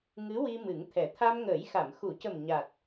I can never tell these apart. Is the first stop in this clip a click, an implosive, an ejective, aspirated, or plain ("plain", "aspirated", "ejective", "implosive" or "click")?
aspirated